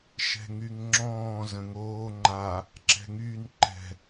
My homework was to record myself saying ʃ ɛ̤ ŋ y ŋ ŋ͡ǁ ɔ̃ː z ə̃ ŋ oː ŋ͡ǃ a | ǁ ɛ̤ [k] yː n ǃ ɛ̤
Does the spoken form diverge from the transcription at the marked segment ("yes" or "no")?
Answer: yes